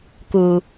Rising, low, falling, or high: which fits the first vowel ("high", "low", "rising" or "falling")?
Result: low